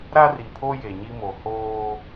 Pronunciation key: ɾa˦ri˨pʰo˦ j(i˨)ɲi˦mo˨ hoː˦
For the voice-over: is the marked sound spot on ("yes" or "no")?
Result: no